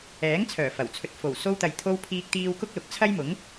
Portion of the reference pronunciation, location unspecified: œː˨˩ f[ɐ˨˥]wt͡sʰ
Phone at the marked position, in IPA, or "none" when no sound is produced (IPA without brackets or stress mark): ɐ˨˩